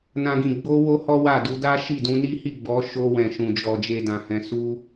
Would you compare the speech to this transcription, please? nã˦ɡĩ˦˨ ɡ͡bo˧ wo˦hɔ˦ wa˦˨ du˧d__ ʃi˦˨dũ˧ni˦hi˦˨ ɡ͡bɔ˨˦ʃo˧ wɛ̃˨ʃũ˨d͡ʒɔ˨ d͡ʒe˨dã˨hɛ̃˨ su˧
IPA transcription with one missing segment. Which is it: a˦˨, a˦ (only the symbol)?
a˦